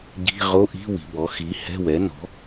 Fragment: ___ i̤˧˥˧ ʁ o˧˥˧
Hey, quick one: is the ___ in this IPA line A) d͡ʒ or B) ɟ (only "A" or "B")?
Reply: B